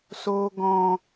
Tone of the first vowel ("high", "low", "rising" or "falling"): low